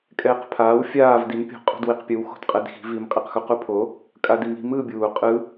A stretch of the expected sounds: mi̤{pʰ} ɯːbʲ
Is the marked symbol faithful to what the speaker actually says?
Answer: no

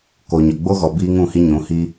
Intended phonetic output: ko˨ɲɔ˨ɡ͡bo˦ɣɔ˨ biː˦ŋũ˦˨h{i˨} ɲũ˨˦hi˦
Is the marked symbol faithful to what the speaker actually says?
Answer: no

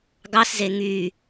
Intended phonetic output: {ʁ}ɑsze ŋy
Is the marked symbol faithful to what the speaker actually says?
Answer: no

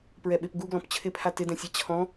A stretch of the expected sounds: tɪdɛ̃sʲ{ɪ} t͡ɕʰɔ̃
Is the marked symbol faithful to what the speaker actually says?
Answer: no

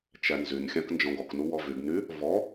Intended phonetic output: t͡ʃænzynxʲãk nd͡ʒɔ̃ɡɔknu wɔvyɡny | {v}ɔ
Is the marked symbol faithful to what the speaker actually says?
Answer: yes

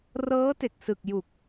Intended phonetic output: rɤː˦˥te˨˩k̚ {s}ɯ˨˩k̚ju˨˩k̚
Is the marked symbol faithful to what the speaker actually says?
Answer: yes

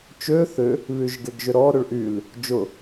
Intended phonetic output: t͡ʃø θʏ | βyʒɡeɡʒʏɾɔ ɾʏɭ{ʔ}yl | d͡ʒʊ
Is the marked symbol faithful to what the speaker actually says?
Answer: yes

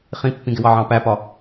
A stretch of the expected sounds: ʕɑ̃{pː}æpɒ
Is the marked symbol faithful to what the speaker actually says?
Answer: no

